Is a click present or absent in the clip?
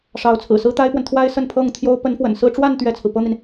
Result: absent